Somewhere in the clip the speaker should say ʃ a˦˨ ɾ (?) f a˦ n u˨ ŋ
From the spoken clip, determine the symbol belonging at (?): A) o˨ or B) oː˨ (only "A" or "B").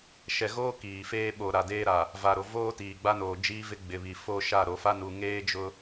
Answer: A